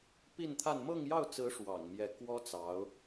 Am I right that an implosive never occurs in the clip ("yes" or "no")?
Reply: yes